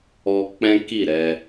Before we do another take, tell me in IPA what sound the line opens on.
ɔ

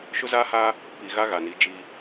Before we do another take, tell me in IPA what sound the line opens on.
ʃ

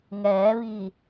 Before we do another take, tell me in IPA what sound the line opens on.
ŋ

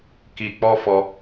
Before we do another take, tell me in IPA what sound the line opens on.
k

